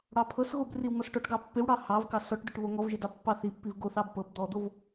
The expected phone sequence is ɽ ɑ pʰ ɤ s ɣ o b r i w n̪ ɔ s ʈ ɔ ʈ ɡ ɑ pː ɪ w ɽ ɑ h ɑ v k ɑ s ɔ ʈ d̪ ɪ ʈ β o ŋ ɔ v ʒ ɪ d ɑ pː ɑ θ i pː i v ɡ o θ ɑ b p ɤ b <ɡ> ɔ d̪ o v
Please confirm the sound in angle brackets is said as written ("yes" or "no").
no